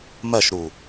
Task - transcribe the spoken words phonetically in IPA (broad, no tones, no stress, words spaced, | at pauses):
mɜʃɾu